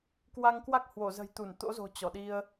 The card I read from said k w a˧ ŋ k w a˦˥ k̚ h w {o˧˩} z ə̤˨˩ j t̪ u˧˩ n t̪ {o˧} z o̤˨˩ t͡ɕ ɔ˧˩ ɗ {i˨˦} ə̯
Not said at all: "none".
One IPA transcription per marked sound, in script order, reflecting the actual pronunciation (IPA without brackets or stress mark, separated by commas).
o˧˩, o̰˧˥, i˧